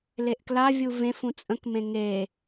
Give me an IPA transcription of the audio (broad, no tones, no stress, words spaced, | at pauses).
leʔklavʲu vẽfũ t͡sʼə̃kmẽ ŋe